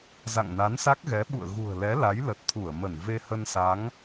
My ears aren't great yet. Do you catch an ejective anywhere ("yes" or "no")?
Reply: no